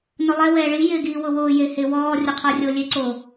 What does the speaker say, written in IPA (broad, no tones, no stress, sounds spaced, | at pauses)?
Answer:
n ʊ lˠ ɛ w ɛː ɭ i j ɪː ɡ iː w ʊ w ʊː j e h e w ɔː rʲ ʊ qʰ ɔ rʲ o lʲ e ǀ o